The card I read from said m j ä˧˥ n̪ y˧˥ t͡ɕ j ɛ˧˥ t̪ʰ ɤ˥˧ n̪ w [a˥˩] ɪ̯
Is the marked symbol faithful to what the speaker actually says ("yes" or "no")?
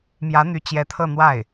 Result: yes